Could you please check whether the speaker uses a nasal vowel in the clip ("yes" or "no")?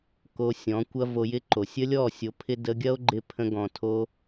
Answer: yes